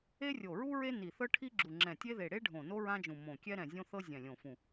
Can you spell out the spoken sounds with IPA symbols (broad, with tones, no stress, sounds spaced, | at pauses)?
e˥ rʲ o˧˩ ɹ u˥ ɹ e˥ n i˧˩ θ ɤ˥ ʈʰ i˥ ɡ͡ǁ u˧˩ ŋ͡ǁ ɛ̃˧˩ tʲ e˥ ð e˧˩ ɽ e˥ ɖʱ õ˧˩ n o˥ ɹ ã˥ d͡ʒ ũ˧˩ m õ˧˩ kʲ ɛ˥ ɾ ɛ̃˧˩ zʲ õ˥ θ ɤ˥ zʲ ɛ̃˧˩ lʲ õ˧˩ f ũ˧˩